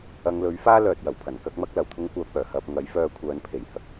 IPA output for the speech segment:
ɐ˨˧ ŋ l ɵ˨˥ ɥ f aː˥ l œː˨ t̚ j ɐ˨˩ w pʰ ɐ˨˩ n k ɐ˥ k̚ m ɐ˥ k̚ l ɐ˨˩ w t̪ʰ ʊ˥ ŋ kʷ œː˧ p̚ œː˨˩ h ɐ˧ p̚ ŋ ɐ˨˥ j f œː˧ kʷʰ œː˨˧ n pʰ e˨˩ j h ɐ˨˥ k̚

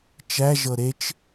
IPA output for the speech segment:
t͡ʃ æ ʒ ɤ ɾ e t͡ʃ

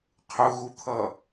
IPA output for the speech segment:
qʰ ʊ ɣ u t̪ʰ ʌ

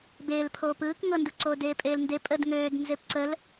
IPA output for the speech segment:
b eː l pʰ oː p ɯː k ŋ ɤ n d u ǀ oː d eː pʼ eː l n d e pʼ ə d ŋ øː d n z e p ǀ ə l

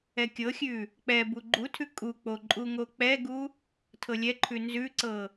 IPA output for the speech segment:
ɛ kʲ ɤ xʲ ʉ | k͡p ɛ b u ɡ͡ǃ u tʰ ʉ kʼ u k͡p o ǃʼ u ŋ o k͡p ɛ ɡ u | tʰ ɤ lʲ ɛ ǃʰ ʉ n z ʉ ǀ ɤ

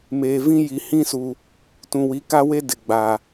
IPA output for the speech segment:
m eː˨ v ĩ˦ j i˨ h ĩ˦ s u˨ | t ũ˨ w i˨˦ k a˦ w e˦ d ɪ˨ ɡ͡b a˨

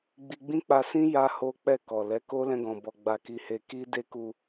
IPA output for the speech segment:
ɡ͡b i˧ ɡ͡b ĩ˦ k͡p a˧ s ĩ˦ j a˦ h o˦ k͡p ɛ˦˨ k ɔ˨ l ɛ˨˦ k o˦ l ɛ̃˧ ɡ ɔ̃˨ b ɔ˧ ɡ͡b a˧ k i˧ h e˧ k i˦ d e˦ k u˧

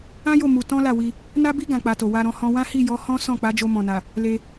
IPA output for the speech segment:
ã˦ j o˦˨ m u˧ t ɔ̃˦ l a˦˨ w i˧ | n a˦ b i˦ ɡ ã˧ k͡p a˧ t o˨ w a˧ ɾ ɔ̃˧ h ɔ̃˧ w ã˦ h i˦˨ j ɔ˨˦ h ɔ̃˦ s ɔ̃˦˨ k͡p a˨˦ d͡ʒ o˧ m ɔ̃˨ n a˨ | l e˧

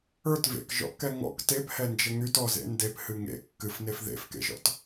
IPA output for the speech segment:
ə˞ t v ḛ k ʒ ɔ̰ ʔ k ɛ ŋ ɔ̰ k t e p h ɛ n d͡ʒ ə ŋ y t ɔ z ḛ n d e p h ɨ ŋ ḛ kː ɨ f n e f ð ḛ f k ḛ ʒ ɔ̰ t

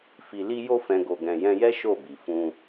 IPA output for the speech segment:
f i˨ l i˧ j o˧ f ɛ̃˨ ɡ o˨ ɡ ɛ̃˨ j ɛ̃˧ j ɛ˦ ʃ o˦˨ b i˨ f ũ˧

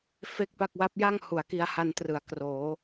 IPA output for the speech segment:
f e˥˩ k̚ p a˥˩ k̚ w a˦˥ p̚ j a˥˩ ŋ h u˩˦ a̯ k i˧ a̯ h a˧ n t r ɯ˩˦ a̯ k r oː˩˦

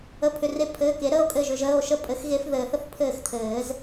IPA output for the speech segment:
ə˩˧˩ pʰ ʏ˩˧˩ r e˧ pʰ ɘː˩˧˩ k e˨˩˦ ɾ əː˧ o̯ kʼ ɘː˧˩ ʒ ʏ˧ ʒ əː˩˧˩ o̯ ʃ ə˥˩ pʼ ɘ˧˥ x ɣ e˧˥ f ð ɘː˨˩˦ θ ə˧ θ pʰ ɘː˥˩ x t̪ʰ ɘː˨˩˦ z

